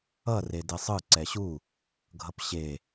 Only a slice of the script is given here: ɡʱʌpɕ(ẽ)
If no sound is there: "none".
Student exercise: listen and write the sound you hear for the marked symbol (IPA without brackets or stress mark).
e